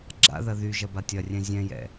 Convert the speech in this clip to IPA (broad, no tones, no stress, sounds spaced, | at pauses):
ɡ͡ǁ a̰ ð ɐ ð y ʒ ɐ b a tʲ ɐ rʲ ɛ̃ zʲ ɛ̃ j ɛ̰